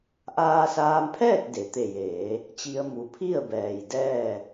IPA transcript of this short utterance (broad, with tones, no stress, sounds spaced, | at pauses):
ʔ aː˧ s aː˧ m pʰ ɛː˥˨ t̚ d e˩ t̪ e˧˩ j eː˩˧ | t͡ɕ i˧ ə̯ m u˩ pʰ i˥˨ ə̯ b ɛː˩ j d ɛː˥˨